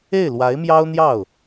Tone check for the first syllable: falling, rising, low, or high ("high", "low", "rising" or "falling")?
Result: falling